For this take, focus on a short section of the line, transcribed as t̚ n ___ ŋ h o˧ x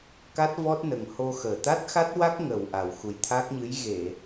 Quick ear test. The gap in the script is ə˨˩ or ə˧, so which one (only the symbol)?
ə˨˩